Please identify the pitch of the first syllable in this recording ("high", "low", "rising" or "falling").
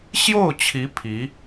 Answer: falling